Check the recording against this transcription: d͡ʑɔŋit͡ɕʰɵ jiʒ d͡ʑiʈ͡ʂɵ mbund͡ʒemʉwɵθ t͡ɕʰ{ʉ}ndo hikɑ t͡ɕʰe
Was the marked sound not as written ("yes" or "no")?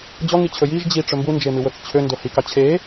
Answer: yes